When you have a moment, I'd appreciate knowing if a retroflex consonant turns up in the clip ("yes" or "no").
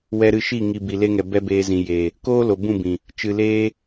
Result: no